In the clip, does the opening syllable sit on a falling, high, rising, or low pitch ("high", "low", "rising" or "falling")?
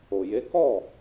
low